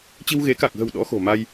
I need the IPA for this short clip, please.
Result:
t͡ɕ i˧ w ɣ e˨˦ k a˨˩ k̚ ɣ ə̤˨˩ w ɗ ɔ̰˧˥ x o̤˨˩ m a˧ j

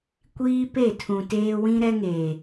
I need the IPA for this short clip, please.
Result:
kʷ iː˦ p e˦˨ tʰ ũ˨ t eː˦ w ĩ˦ ɾ ɛ˦ ŋ eː˨

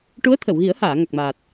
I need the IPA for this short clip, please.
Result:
ʈ u˧˥ ə̯ t̪ʰ ə˨˩˨ w ɣ i˨˩˦ ə̯ h aː˨˩˨ ŋ a˨˩ k̚ m aː˨˩ t̚

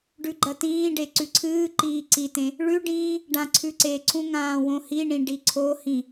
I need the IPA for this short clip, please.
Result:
ɖ ʉ ɡ͡ǃ ɐ t ĩː ɖ e ǀ ʉ ǀʰ ɨː ǃ iː ǀ i t ẽ | ɭ ʉ ɖ ĩː | ɖ ã ǀʰ ʉ ǀ e ǀʰ ũ ŋ ãː w õ h i ɳ ĩ ɖ i ǀʰ o h ĩ

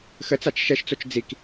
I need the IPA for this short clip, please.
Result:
x ə t͡s a t͡ʃ ʃ ɛ ʃ t͡s o t͡ʃ d͡z i k

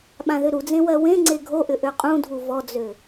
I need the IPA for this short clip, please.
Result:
ɓ ã ð ʏ ɾ u d͡z ẽ w ɜ w ẽ ŋ͡ǀ e ɡʱ o ʔ ʏ ʔ ø qʼ ũ dʱ u v ɔ d͡z ø

